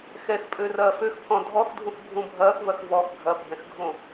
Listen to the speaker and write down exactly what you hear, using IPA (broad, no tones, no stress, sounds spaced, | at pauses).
x ɛ x pʼ ø r ɐː f ø x pʰ ɔ̃ dʱ ɔ x dʱ ũ x bʱ ũ bʱ ɐː x v ɐ x v ɔ x ɡʱ ɐ bʱ ɛ̃ x ɡʱ õ